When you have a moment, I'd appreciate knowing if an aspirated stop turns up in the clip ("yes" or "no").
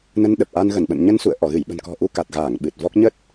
no